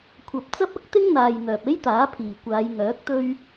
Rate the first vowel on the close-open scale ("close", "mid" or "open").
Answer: open